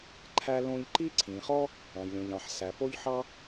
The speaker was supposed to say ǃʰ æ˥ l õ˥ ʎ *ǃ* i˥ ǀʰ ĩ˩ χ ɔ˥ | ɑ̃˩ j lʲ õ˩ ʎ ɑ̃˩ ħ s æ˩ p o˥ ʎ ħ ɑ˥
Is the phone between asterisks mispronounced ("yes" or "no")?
no